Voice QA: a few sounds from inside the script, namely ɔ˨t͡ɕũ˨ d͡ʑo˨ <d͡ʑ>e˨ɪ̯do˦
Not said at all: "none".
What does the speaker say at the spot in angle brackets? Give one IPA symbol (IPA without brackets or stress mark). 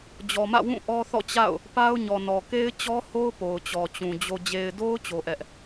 d͡ʑ